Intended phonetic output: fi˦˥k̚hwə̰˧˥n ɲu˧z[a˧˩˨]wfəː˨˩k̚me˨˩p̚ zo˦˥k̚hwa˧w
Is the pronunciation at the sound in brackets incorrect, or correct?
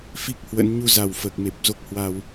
incorrect